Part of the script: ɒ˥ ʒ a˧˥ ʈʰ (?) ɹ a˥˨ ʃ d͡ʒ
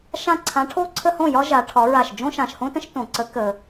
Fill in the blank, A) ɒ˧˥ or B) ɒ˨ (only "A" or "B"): A